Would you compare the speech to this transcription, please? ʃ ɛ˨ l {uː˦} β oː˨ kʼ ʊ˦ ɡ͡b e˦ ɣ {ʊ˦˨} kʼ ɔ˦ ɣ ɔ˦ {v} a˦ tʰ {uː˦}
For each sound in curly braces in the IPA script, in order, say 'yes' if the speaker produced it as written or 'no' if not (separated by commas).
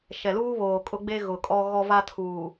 yes, no, yes, no